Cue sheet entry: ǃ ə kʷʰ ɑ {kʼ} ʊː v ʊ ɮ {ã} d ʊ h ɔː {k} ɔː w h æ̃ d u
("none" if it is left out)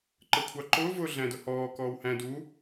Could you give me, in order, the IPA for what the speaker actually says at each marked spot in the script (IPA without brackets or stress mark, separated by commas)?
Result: ǃ, æ̃, k